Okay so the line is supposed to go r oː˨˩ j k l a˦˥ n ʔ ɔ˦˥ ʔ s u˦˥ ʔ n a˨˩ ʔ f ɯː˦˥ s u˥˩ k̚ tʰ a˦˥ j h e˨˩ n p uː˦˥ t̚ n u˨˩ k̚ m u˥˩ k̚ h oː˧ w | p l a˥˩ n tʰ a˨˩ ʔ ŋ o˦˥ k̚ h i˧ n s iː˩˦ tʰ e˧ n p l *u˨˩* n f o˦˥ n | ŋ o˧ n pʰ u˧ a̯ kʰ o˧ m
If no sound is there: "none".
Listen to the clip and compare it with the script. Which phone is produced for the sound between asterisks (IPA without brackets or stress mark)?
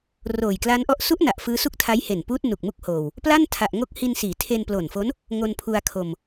o˨˩